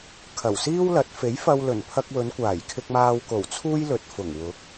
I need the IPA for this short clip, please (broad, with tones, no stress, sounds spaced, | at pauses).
kʰ ɐ˨˩ w s iː˥ w l ɐ˨˥ t̚ f e˨˥ j f ɐ˧ w l ɵ˨˩ n pʰ ɐ˧ k̚ w ɵ˨˧ n kʷ aː˨˩ j kʰ ɪ˧ k̚ m aː˧ w k o˨˩ w t͡sʰ uː˥ j l ɵ˨ t̚ f ʊ˨˩ ŋ w ʊ˨˥ k̚